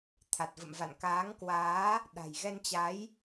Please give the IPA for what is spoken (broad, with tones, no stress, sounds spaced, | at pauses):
t̪ʰ a˨˩ t̚ v ə̰˧˨ m v a̰˧˨ n k aː˨˦ ŋ k w aː˨˦ | ɗ a̤˨˩ j ɣ ɛ˧ n t͡ɕ a˨˦ j